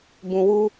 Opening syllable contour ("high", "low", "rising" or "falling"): low